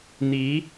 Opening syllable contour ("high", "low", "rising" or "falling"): rising